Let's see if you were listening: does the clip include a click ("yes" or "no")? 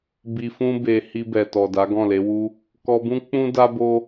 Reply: no